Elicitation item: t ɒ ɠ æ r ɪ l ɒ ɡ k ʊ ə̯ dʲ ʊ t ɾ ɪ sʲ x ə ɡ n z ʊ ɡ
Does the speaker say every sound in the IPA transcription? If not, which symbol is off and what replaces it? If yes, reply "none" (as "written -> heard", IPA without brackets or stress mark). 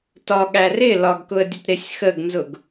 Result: none